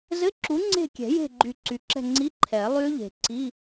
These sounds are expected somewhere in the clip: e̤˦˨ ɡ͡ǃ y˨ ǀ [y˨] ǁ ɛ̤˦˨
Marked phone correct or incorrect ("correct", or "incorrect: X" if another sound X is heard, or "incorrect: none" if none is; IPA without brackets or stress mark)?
correct